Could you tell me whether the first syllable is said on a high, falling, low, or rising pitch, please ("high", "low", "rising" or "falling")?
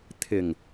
low